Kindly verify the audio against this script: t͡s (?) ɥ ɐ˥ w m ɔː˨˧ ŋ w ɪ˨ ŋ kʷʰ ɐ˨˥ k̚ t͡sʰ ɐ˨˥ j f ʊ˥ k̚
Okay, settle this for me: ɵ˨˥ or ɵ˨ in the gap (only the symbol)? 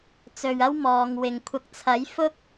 ɵ˨